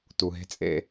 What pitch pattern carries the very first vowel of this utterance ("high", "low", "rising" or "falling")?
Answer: low